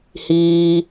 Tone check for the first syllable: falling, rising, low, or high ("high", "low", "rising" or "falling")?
low